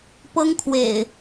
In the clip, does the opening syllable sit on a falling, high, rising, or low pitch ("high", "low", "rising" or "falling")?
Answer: high